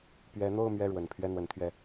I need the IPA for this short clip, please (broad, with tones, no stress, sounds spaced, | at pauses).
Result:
p ɥ ɛ˧˥ n̪ o˥˧ ʊ̯ m ɥ ɛ˥˩ ɻ w ə˨˩ n pʰ ɥ ɛ˥˩ n̪ w ə˧˥ n t̪ʰ ɥ ɛ˥˩